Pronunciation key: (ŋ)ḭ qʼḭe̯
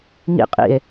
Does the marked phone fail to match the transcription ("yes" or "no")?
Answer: no